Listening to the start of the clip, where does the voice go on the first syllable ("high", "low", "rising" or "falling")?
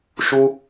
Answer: high